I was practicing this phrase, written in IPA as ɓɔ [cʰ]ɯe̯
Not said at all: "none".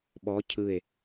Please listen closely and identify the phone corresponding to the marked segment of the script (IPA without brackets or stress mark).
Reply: cʰ